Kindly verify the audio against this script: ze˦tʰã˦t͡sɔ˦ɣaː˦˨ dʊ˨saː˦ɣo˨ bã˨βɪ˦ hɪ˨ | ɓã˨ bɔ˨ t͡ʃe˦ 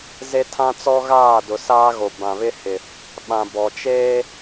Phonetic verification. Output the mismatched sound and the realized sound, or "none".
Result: none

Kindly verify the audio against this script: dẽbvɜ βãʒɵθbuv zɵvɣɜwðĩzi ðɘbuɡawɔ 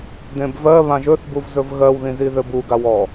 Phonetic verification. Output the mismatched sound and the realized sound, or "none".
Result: none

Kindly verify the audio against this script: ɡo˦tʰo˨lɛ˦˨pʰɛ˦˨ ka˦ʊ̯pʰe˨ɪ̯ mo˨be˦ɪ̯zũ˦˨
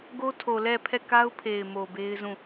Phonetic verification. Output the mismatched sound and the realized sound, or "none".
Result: none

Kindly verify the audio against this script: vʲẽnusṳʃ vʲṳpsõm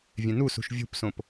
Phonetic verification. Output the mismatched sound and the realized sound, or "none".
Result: m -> p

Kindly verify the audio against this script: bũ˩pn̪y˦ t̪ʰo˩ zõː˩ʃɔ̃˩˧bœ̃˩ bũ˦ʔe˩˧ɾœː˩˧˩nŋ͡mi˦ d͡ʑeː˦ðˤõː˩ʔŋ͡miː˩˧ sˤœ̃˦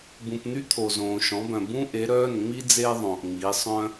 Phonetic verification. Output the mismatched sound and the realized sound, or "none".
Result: d͡ʑ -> d͡z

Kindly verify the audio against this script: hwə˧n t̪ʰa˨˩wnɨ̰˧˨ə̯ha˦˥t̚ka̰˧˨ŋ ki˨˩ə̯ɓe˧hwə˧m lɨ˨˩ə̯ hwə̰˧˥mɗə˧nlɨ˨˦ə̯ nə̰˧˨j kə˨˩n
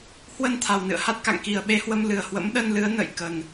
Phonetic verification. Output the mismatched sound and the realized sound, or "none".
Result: none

